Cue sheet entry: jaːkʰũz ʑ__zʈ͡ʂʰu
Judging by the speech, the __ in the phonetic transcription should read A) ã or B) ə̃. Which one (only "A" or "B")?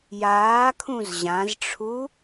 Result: A